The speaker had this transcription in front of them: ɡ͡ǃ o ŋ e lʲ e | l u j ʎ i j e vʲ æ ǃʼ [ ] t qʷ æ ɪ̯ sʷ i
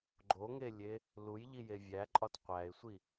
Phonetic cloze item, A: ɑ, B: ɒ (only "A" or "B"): B